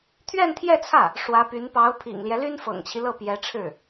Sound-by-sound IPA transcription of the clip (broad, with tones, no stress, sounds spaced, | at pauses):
t̪ʰ ɥ ɛ˥˧ n t̪ʰ j ɛ˥˧ t͡sʰ ä˥˩ | ʂ w ä˧˥ p y˧˥ n p ɑ˧˥ ʊ̯ pʰ ḭ˨˩ ŋ l j ɛ˦ l y˥ n f ɤ̰˨˩ ŋ t͡ɕʰ i˦ l ɤ˥˩ p j ɛ˧˥ ʈ͡ʂʰ ɻ̩˥˩